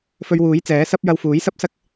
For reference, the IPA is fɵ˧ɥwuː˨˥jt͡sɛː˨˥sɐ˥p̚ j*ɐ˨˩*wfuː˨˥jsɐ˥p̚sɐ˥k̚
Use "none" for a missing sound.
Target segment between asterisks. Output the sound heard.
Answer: ɐ˧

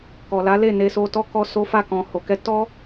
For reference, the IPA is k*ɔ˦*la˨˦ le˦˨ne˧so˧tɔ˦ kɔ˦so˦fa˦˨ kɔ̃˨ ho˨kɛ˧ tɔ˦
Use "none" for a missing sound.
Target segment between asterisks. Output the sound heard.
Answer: ɔ˨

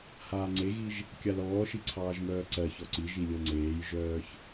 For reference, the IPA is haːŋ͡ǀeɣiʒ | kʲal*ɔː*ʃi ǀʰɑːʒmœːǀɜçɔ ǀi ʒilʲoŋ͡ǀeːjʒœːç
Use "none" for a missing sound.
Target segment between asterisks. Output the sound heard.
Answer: ɔː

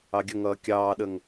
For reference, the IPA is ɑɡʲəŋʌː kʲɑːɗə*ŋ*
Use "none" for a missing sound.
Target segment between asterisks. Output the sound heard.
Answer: ŋ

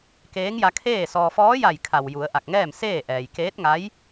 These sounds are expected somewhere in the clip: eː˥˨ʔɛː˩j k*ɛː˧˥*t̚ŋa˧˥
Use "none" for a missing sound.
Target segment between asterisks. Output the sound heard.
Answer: eː˧˥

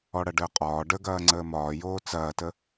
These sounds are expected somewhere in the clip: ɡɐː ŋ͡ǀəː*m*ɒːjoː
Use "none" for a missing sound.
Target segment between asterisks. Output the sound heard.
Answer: m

